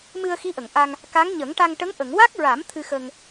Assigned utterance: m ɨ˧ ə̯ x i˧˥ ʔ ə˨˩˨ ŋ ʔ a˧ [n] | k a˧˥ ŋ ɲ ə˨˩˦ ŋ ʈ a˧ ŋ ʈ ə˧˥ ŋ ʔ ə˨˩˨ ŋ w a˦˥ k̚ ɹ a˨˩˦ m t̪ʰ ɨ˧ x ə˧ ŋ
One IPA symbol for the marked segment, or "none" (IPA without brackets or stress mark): ŋ